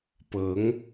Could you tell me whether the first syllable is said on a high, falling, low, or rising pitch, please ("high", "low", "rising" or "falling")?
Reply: rising